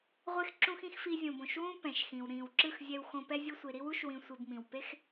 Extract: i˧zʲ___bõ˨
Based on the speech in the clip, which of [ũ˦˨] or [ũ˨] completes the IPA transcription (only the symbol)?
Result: ũ˨